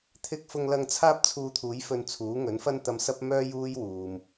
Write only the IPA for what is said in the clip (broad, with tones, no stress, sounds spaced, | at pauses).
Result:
t̪ʰ ɪ˧ k̚ f ʊ˧ ŋ l ɐ˧ ŋ t͡sʰ aː˥ p̚ t͡sʰ uː˧ t̪ʰ uː˨˥ j f ɵ˧ n t͡sʰ uː˨˥ ŋ ɵ˨˥ n f ɐ˥ n t̪ ɐ˧ m s ɐ˥ p̚ m œː˥ j uː˥ j w uː˨ m